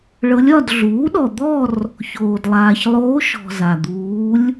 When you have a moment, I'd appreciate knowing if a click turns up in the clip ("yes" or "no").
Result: no